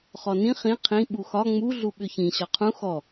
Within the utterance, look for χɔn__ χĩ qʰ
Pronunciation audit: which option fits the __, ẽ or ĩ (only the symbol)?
ĩ